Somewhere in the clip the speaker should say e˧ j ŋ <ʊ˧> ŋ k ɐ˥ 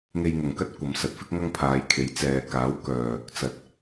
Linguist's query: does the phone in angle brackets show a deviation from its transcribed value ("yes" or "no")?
yes